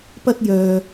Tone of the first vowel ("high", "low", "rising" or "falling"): high